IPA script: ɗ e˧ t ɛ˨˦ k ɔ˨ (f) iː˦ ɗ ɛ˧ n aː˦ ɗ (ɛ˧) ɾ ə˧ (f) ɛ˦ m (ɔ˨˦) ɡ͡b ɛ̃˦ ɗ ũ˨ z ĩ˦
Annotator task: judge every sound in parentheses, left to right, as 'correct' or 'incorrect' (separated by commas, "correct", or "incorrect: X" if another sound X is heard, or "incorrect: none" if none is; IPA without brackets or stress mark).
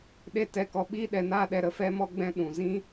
incorrect: ɓ, correct, correct, incorrect: ɔ˦